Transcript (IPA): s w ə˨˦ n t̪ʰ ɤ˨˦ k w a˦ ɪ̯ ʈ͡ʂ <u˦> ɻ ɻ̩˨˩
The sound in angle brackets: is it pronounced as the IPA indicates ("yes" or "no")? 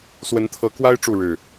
no